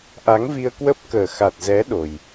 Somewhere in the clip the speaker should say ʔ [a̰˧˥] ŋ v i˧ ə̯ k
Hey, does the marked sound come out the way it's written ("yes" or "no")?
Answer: no